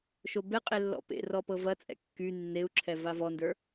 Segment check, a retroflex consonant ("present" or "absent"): absent